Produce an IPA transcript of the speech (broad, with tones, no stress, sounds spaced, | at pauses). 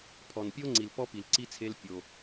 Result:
pʰ ɔ˨ n pʲ o˦ ŋ͡ǀ i˨ l p ɔ˦ p i˨ l ǀ i˦ t͡sʰ e˦ l pʲ o˦